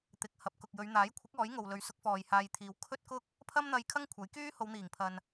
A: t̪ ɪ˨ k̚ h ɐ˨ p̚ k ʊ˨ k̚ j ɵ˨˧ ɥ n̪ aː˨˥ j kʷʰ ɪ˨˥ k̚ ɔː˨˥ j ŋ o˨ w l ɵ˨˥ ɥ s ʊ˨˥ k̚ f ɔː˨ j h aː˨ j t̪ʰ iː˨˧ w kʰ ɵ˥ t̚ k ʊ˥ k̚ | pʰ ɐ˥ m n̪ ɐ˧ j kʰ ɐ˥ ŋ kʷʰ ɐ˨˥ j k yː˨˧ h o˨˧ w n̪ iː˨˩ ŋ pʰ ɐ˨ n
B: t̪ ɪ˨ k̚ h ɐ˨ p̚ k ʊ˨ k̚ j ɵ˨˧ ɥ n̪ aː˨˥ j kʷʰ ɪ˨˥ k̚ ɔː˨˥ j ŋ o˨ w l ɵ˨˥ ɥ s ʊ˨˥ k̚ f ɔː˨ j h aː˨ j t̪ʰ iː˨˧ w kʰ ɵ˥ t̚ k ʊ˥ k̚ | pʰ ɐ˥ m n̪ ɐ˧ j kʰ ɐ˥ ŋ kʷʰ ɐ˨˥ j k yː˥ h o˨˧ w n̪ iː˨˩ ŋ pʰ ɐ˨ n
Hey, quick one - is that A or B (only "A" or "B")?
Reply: B